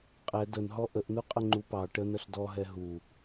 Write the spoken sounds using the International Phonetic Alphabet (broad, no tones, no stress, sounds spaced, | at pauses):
qʼ ɛ d ə n ɦ ɔ ʔ ə ʔ n u qʼ ə ŋ͡ǃ u p ɑ ʈ ə n ə ɬ d ɔ ɦ ɛ ɦ u